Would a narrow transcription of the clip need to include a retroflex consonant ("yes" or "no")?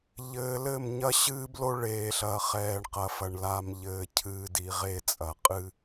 yes